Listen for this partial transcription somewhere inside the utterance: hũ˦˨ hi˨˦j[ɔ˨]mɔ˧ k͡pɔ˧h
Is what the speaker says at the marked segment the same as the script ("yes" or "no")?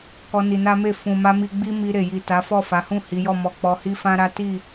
no